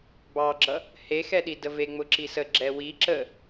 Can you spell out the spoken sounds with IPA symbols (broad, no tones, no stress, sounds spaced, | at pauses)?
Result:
b ɑ ɡ͡ǁ ʌ | h e x ɛ ɗ i d ə v e ŋ͡m ʊ ǁ i s ə ɡ͡ǁ ɛ w i ǁ ə